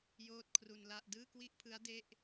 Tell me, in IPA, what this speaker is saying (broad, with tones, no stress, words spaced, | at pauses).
joː˥˩t̚ kʰru˧nla˥˩ʔ dɯː˥˩kwi˥˩ʔpʰɯ˦˥a̯ de˥˩ʔ